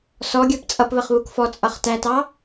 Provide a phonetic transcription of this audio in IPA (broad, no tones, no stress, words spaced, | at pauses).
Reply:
sɔɡʲə˞p t͡sʼʌpβəχβuk fɔt͡sʼʌχ tætɑ